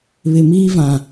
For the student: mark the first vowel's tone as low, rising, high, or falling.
low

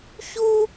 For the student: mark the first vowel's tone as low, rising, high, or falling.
high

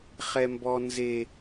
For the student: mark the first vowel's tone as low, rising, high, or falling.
high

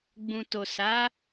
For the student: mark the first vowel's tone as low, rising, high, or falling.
low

